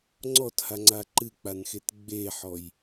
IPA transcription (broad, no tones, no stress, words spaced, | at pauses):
ŋ͡ǀɔthaŋ͡ǀa ǃɨk͡panxet ɡ͡beħɔj